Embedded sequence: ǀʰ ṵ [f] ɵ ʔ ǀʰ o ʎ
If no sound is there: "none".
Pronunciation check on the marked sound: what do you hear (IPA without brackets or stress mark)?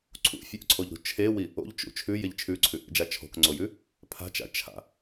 fʲ